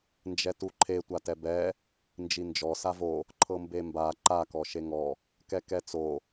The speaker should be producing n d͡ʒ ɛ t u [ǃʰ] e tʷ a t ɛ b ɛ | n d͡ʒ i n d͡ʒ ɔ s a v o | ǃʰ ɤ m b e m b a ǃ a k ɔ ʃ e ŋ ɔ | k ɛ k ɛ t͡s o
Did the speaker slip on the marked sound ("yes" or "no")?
no